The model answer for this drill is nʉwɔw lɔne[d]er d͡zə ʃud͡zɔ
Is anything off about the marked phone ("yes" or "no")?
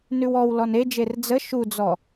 yes